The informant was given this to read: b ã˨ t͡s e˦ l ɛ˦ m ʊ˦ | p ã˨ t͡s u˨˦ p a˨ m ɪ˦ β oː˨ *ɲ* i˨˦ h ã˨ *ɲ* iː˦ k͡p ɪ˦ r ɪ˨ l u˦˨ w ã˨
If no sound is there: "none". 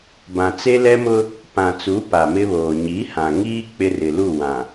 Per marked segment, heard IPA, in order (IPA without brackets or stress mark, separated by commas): ɲ, ŋ